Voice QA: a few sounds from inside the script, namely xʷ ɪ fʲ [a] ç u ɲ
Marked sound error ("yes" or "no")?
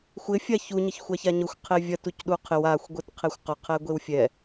no